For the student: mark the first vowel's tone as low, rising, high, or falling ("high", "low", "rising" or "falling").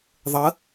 rising